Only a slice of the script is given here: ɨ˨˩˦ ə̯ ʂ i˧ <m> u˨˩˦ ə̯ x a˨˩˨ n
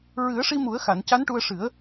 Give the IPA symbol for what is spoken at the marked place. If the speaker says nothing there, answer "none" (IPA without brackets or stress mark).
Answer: m